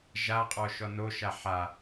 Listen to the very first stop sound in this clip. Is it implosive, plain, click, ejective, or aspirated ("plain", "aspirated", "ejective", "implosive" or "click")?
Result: ejective